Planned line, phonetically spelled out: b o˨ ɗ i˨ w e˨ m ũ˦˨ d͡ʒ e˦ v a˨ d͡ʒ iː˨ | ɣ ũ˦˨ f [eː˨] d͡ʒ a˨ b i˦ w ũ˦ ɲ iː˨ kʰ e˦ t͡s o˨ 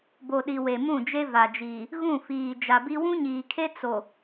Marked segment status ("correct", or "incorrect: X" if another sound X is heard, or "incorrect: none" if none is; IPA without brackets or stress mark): incorrect: iː˨